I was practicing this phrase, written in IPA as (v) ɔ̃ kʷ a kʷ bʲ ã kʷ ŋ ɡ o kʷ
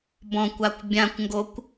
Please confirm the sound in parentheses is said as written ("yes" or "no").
no